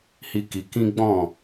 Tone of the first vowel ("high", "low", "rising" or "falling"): high